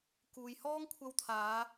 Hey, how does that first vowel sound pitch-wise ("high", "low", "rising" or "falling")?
low